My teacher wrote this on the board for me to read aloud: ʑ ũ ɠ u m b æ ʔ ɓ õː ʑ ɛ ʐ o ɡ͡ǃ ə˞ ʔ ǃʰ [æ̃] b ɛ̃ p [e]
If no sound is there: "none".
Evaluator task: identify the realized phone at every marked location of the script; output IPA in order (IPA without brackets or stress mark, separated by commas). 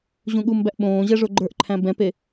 æ̃, e